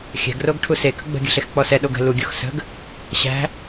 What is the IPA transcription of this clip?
xʲ æ̤ ɡ r o ɡ ʈʰ u s e k ə̤ ɡ͡b ə̤ ɡʲ ə̤ ɬ e x k͡p ɔ s ɛ ɗ o ɡ ə̤ l u ɡʲ o x s ə̤ ɡ | ɕ æ̤

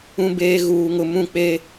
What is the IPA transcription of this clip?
ũ˦ b eː˦ ɣ uː˦ ŋ ʊ˦ m ũ˦˨ k͡p e˦

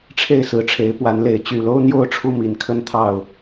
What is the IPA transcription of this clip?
ʈ͡ʂʰ e˥˨ ɪ̯ s ɹ̩˨˦ ʈ͡ʂʰ e˨˦ ɪ̯ p w a˨˦ n l e˨˦ ɪ̯ t͡ɕ y˨˩ l o˦ ʊ̯ n̪ j o˥˨ ʊ̯ ʈ͡ʂʰ u˥˨ m i˨˦ n kʰ ə˦ n t̪ʰ ɑ˥˨ ʊ̯

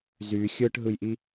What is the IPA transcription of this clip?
z y xʲ ɯ ʈ ɦ ɯ j ʔ i

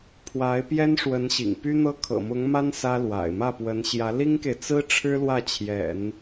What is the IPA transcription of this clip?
pʰ w a˧˥ ɪ̯ p j ɛ˥ n ʂ w ə˧˥ n ɕ ḭ˨˩ ŋ p y˥ n̪ ɤ˥ kʰ ɤ̰˨˩ m ʊ˧˥ ŋ m a˥ n s ä˥ l w a̰˨˩ ɪ̯ m ä˥˩ p w ə˧˥ n ɕ j ä˧˥ l i˥ ŋ k e˨ ɪ̯ t͡s ɹ̩˥ ʈ͡ʂʰ ɻ̩˥ l w ä˥˩ t͡ɕʰ j ɛ̰˨˩˦ n

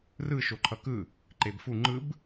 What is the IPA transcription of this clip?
r ɯ ʃ o ǃʰ ʌ k ɯ | ǃ e b f u ŋ͡ǃ ɯ b

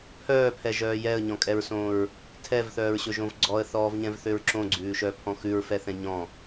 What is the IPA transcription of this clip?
pʰ œː pʰ ɛ ʒ œː j ɛ ə̯ ɲ ɔ̃ kʼ ɛ ɹ s õː ɹ | tʰ ɛ v θ œː ɹ ɕ ɵ ʒ õ v ɡ͡ǀ ɔ ə̯ θ ɔː v ɲ ɛ̃ v θ ø ɹ ǁ õ ɡ͡ǀ ʉː ʃ œ pʰ ɔ̃ x ʉ ɹ f ɛ θ ɛ̃ ɲ ɔ̃

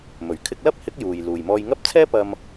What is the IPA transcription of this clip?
m ɵ˨˩ ɥ kʰ ɪ˧ k̚ l ɐ˥ p̚ h ɪ˨˥ k̚ j uː˨ j l uː˨ j m ɔː˧ j ŋ ɐ˥ p̚ t͡sʰ ɛː˥ p ɐ˧ m

